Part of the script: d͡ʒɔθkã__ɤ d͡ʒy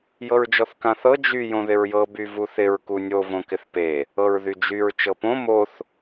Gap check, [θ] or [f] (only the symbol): θ